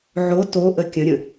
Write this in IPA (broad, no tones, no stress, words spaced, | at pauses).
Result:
ʕo toʔə kʲə̃ɾʲə̃